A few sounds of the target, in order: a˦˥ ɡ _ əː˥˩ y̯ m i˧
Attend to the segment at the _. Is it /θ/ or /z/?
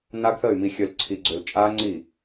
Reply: θ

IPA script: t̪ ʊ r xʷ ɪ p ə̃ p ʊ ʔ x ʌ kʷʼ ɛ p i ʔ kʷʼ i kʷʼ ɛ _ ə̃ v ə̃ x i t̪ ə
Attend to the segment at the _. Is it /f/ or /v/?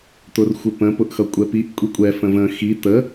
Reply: f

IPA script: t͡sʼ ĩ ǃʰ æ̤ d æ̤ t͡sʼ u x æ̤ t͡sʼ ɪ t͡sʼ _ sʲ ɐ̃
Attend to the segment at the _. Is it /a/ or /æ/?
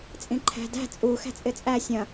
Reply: æ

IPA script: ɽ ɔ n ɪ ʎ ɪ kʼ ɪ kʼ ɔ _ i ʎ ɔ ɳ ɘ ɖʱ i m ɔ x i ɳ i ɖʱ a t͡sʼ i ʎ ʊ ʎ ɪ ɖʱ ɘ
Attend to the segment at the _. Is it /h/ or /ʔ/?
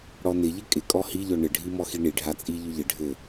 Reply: h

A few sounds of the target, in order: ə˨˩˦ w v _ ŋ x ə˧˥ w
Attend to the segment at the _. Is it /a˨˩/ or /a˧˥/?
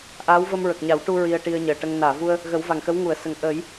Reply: a˨˩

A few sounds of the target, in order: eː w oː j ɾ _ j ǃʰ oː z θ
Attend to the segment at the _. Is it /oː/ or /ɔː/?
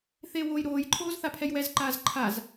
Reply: oː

